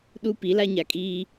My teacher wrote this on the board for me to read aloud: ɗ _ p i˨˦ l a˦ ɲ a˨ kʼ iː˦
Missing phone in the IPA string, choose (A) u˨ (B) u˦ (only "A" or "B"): B